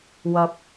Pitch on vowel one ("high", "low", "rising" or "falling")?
low